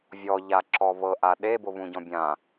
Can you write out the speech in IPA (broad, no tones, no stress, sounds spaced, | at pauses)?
vʲ ɔ ʎ a ǁ ɔ β ɤ ʔ a ɗ e b o β ũ ɟ ɔ̃ bʲ ã